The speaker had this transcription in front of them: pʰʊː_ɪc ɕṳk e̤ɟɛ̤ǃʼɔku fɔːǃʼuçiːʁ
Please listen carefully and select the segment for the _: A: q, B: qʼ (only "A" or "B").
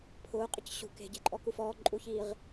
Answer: B